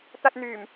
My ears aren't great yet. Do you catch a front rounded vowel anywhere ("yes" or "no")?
yes